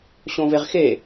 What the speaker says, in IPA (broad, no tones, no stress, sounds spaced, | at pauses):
ɕ õ v e ʁ x e